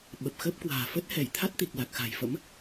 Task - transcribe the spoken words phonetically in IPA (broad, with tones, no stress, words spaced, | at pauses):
ɓə˨˩p̚xə˦˥p̚kwa̤ː˨˩ fə˦˥t̚hɛ˧˩jt̪ʰa˦˥t̚ t̪i˨˩k̚la˨˩k̚xa̤˨˩jfə̰˧˥m